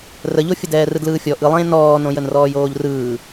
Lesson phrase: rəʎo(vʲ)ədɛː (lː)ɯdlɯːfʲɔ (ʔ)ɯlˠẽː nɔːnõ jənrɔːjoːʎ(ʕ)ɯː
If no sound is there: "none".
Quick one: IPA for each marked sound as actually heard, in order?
fʲ, r, ʔ, r

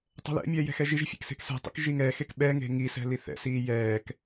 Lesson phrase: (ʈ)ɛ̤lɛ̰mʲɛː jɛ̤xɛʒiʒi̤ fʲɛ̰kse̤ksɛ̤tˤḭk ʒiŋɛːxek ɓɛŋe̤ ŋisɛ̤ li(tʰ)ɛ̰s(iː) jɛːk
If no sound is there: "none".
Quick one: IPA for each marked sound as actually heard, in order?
tˤ, θ, iː

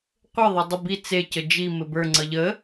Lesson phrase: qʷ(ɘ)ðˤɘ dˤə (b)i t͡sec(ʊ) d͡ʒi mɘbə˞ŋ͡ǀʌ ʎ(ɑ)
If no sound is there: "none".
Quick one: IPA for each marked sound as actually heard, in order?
ɘ, b, ə, ə

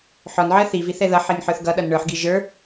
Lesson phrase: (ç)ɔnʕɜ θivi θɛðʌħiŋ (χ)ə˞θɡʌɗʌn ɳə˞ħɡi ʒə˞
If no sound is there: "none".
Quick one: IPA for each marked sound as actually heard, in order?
ħ, ħ

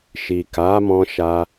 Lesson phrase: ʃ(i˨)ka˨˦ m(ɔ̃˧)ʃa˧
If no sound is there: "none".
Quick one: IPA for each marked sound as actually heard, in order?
i˨, ɔ̃˧

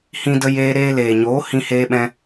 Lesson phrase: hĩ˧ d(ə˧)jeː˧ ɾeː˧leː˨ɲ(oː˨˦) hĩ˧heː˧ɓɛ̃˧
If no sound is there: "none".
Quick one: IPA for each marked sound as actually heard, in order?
ə˧, oː˨˦

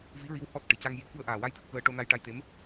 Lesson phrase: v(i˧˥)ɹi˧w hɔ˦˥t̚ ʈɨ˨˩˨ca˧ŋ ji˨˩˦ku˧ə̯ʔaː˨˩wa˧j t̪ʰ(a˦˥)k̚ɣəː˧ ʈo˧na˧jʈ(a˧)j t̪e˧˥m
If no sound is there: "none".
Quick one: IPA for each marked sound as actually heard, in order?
i˧˥, ə˦˥, a˧

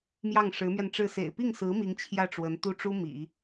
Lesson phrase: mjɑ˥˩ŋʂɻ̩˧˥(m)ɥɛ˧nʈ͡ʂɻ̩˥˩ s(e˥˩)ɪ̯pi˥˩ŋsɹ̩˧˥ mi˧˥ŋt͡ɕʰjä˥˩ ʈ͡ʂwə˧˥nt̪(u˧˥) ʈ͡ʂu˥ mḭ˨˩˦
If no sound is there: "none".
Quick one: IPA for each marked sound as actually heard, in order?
m, ḛ˨˩, u˥˩

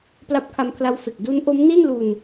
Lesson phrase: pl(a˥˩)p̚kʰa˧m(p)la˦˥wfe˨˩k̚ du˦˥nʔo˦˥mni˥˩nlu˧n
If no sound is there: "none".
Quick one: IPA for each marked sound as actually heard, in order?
a˦˥, pʰ

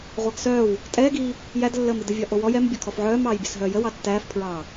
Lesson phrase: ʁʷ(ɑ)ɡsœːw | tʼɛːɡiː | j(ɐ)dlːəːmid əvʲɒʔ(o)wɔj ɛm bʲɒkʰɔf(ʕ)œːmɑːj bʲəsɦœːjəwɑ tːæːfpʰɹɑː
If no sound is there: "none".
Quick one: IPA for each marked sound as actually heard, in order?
ɑ, æ, o, ʕ

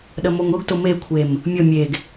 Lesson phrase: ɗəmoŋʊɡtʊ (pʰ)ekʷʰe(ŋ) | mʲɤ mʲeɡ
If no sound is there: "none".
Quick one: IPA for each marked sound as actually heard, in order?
m, m

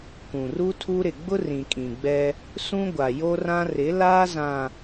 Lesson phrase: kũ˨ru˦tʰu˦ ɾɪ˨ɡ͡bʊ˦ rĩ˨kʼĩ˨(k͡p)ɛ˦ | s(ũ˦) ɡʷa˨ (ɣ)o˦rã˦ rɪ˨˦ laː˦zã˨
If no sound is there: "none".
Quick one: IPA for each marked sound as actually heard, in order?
ɡ͡b, ũ˦, j

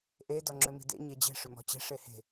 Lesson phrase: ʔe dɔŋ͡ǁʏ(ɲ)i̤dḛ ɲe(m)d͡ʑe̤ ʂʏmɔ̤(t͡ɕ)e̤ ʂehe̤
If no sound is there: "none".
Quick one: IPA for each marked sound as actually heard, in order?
m, none, t͡ɕ

